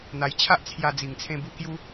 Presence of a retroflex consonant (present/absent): absent